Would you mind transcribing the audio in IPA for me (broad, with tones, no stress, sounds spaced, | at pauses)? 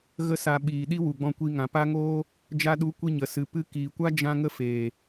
ɣ ə˧ s a˨ ɓ iː˨ ɗ i˦ w u˨ ɡ͡b ɔ̃˧ kʷ i˧ ŋ ã˨ p a˦ ŋ oː˦ | d͡ʒ a˧ ɗ u˨˦ kʷ i˧ ɲ ə˨ s ɨ˨ p ɨ˧ k iː˨ kʷ a˦ d͡ʒ ã˦ ŋ ə˦ f eː˨